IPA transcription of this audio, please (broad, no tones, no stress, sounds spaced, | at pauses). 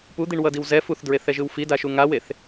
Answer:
p u d̪ i ɳ w ʌ d i w z ɛ f u θ d ɹ e θ ɛ ʒ ɯ w f i d a ʃ u ŋ a w e θ